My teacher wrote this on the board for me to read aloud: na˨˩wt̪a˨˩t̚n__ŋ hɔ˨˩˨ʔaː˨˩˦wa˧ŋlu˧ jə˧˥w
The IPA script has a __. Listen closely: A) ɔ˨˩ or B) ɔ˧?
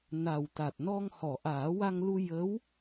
B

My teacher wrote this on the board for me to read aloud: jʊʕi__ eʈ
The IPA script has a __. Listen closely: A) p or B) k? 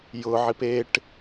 A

